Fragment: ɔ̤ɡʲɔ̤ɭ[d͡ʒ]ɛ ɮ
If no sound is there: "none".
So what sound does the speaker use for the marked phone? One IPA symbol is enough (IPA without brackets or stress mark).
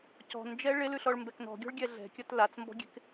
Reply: ɡʲ